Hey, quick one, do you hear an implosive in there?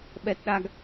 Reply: yes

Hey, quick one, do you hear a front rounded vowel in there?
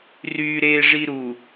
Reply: yes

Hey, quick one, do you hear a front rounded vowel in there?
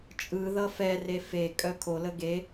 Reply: yes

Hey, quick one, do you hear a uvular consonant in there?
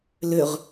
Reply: yes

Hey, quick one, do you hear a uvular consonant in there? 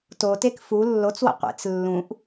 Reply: yes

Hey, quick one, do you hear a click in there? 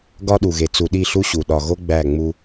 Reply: no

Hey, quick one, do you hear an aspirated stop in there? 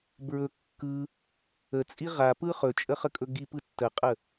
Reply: no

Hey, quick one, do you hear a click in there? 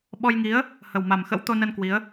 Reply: no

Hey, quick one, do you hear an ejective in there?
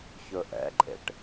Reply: yes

